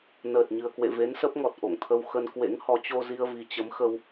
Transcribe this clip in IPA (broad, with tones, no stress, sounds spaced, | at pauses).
n əː˨˩ t̚ ɲ ɨ˨˩ ə̯ k w ḛ˧˨ v e˨˦ n s ə˦˥ p̚ ŋ ɔ˨˩ t̚ ʔ o̰˧˨ ŋ t̪ʰ ə˧ w x ə˧ n k w ḛ˧˥ ŋ h ɔ˨˦ t͡ɕ o˧ z i˧ ə̯ v i˨˩ t͡ɕ ə˨˦ m x ə˧ w